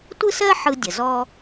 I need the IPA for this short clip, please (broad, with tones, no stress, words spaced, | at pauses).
tʷɯ˥sɜ˥ ħɯ˧dʲə˩zɔ˧